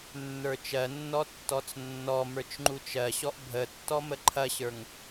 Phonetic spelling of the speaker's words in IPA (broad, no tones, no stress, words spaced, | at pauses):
nːə˞t͡ʃɜnːɔ tːɔt͡snːɔmə˞t͡ʃ ŋ͡ǃut͡ʃɜɕɔʔ bʱətːɔ məǃʰɐɕə˞ŋ